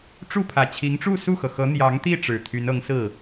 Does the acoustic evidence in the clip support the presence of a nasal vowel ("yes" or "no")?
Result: no